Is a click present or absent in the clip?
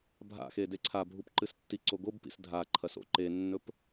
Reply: present